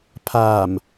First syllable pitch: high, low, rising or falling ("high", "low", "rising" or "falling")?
low